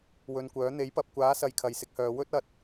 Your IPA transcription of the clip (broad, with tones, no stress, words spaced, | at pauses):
wɵ˧nkʷœː˨˥ n̪e˨˥jpɐ˨p̚kʷaː˨˥sɐ˨j kʰɐ˨˧jsɪ˨˥k̚hœː˨˧ wɵ˥t̚ ɐ˨˥t̚